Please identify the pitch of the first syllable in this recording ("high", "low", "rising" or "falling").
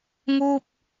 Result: falling